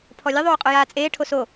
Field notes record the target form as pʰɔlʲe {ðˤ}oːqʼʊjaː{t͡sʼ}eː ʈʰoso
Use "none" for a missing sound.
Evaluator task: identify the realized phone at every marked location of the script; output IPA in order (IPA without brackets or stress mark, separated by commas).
ðˤ, t͡sʼ